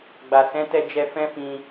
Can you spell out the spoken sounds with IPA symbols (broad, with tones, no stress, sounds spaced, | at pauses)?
ɡ͡b a˨ s ɛ̃˨˦ t ɛ˧ d͡ʒ ɛ˧ f ɛ̃˦ f ĩ˧